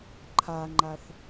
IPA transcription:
ǃʰaŋ͡ǃaθ

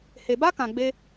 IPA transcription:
he˨ba˦kã˨ɡ͡be˧

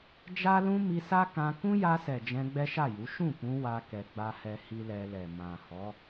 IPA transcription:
d͡ʒa˦lũ˦ mi˧sa˦ kã˧ kũ˦ja˧sɛ˨ d͡ʒɛ̃˧ɡ͡bɛ˦ʃa˦˨ju˨˦ ʃũ˦˨kũ˧ wa˧ kɛ˧ɡ͡ba˦hɛ˦ hi˦lɛ˧lɛ˨ mã˨hɔ˨˦

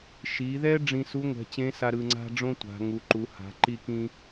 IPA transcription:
ʃi˩˧ðɛ˥ ɖ͡ʐĩ˧su˧˥ ŋʷɛ̤˩˧t͡ɕẽ˧˥sa˧ ɾɯ˧ŋ͡ǀa̤˥ɖ͡ʐõ˥tʷa̤˩˧ ŋu˩˧ǃu˩˧ ha̤˩˧ ǃi˧kĩ˧

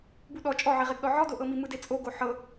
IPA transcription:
buɗɔ t͡ʃʼɔʕiʁeɡɗɔ ʕɔdoʔɤmi mɯdet͡sʼoɡo ħɤ

